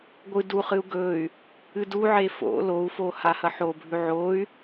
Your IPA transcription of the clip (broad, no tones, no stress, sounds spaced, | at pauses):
ɡʷ ɨ d u χ ɨ u̯ ɡ ɵ y̯ | ɨ d u ʕ e f o̰ l o u̯ f o h a h ɐ ħ o bʱ ʉ ʕ o y̯